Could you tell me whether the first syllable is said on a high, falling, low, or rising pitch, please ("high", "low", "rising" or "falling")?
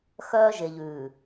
high